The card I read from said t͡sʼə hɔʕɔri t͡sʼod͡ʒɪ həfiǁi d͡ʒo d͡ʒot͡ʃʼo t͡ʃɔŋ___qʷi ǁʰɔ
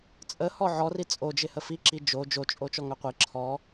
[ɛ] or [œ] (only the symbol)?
œ